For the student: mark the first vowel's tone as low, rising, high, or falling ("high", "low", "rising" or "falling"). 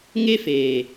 high